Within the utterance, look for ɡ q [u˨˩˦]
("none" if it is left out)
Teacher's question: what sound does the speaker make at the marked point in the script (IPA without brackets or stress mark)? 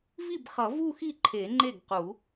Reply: u˨˩˦